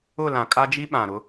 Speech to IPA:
ʊ˦˨ l ã˨ kʼ a˦ d͡ʒ i˦ ɓ ã˨ ɾ ʊ˦

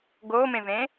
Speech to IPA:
ɡ oː m ẽ v ẽː

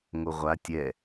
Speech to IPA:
ŋ o ʁʷ a tʲ ɛ

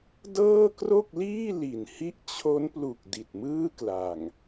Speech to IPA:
d ɤː˥˩ k r o˥˩ k̚ l iː˥˩ l i˨˩ n h i˦˥ ʔ t͡ɕʰ o˦˥ n p l u˨˩ k̚ d i˨˩ t̚ m ɯː˥˩ k l a˨˩ ŋ

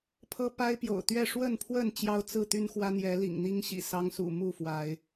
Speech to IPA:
pʰ ɤ˦ p a˦ ɪ̯ p j o̰˨˩ ʊ̯ t̪ ɥ ɛ˥˨ ʂ w ə˥˨ n pʰ w ə˥˨ n t͡ɕ j ɑ˦ ʊ̯ t͡s ɹ̩˥˨ t̪ y˦ n x w ä˦ n̪ j ɛ˨˦ l ḭ˨˩ ŋ n̪ i˦ ŋ ɕ ḭ˨˩ s ɑ˦ ŋ s ṵ˨˩ m u˥˨ f w a˨˦ ɪ̯

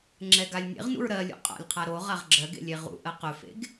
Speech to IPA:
ŋ͡ǁ ɛ ɡ a lʲ nʲ ḛ ʁ n ṵ ɹ ɾ ɜ lʲ ṵ qʼ a̰ lʲ qʰ a ɾ o ʁ a ʁ ɡ͡ǁ ɜ ɡ ḛ lʲ e ʁ ṵ ʔ ɜ q ɵ f ḛ ɡ

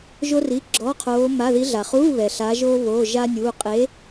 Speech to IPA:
ʒ o˥ r i˧˥˧ ɡ͡ǁ ɔ˧˥˧ qʰ oː˧˥ m a˧˥˧ ð i˧˥ ɮ a˨ χ uː˧˥˧ β ɛ˨ ɬ a˧˥ ʒ oː˥ β oː˧˥˧ ʒ a˥ nʲ uː˧˥˧ qʼ e˧˥

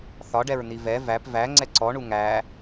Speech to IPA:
θ ɒ ɖ ɛ ɹ n̪ i v ɛ v æ p v æ ŋ͡ǀ ɛ ǀ ɔ ɳ u ŋ æ

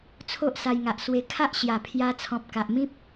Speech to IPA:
t͡sʰ o˦ ʔ s a˧ j ŋ a˨ ʔ s w e˧ kʰ a˦ ʔ ɕ j a˨˩ pʰ j a˧ t͡sʰ ɔ̃˨ p̚ k a˨ ʔ m ĩ˦ p̚

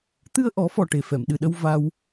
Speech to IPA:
t̪ ɨ˧ ə̯ ʔ ɔ˨˩˦ f ɔ˨˩ ʈ e˨˩ f ɛ˨˩˨ m ɗ ɨ˨˩ ɗ ə˧ w v a˧ w

